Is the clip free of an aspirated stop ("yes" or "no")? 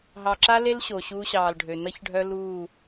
yes